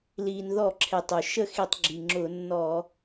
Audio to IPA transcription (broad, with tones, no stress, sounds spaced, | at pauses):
l iː˩ n ð ɔ˧˩˧ ǁʰ e˩ tˤ ʊ˩ ʃ ə˥˩ x i˧˩˧ tˤ ɡ͡ǁ i˩ ŋ͡ǁ ʊ˧˩˧ nː ɔ˧˩˧